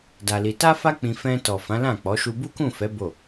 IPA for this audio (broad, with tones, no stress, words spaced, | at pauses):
da˧li˧ ta˦fa˦ k͡pĩ˧ fɛ̃˧tɔ˨fã˨˦ lã˦˨ k͡pɔ˨˦ ʃu˧bu˦kũ˦˨fɛ˨˦ bo˦˨